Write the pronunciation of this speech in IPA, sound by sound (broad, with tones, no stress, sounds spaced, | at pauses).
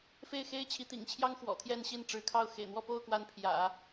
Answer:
f e˥˩ ɪ̯ x e˥ ɪ̯ t͡ɕʰ i˧˥ t̪ ḭ˨˩ ŋ t͡ɕʰ j ɑ˥ ŋ x w ɔ̰˨˩ t̪ʰ j ɛ˥˧ n ɕ i˥˩ n ʈ͡ʂ ɻ̩˧˥ kʰ ɑ˥˩ ʊ̯ x ḛ˨˩ ɪ̯ n̪ w ɔ˥˧ p o˥˩ ʊ̯ k w a˧˥ n pʰ j ä̰˨˩˦